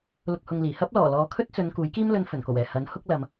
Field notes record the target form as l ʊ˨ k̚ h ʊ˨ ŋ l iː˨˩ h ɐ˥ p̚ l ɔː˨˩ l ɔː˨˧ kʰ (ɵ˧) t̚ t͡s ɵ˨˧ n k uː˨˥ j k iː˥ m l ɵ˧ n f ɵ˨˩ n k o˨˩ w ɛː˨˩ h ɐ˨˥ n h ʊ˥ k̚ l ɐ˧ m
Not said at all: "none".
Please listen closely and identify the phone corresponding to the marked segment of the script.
ɵ˥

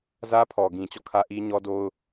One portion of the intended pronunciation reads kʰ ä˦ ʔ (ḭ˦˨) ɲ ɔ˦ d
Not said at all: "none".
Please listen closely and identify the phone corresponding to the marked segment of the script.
i˦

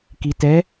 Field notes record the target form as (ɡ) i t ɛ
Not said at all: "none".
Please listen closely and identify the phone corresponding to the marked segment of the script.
k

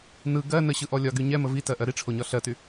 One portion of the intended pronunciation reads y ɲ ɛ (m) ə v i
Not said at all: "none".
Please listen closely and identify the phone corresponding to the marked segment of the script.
m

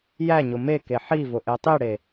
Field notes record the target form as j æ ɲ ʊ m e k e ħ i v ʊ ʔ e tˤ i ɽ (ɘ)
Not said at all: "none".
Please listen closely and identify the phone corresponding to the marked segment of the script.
e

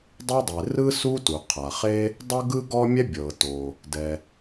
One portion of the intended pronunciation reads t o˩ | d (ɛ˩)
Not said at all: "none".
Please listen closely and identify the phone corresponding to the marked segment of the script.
ɛ˩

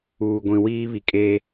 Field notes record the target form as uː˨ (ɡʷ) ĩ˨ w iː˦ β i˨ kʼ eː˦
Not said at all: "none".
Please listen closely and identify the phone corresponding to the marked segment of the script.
ɡʷ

